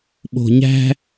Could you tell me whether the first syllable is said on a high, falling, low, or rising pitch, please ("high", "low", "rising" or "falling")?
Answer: low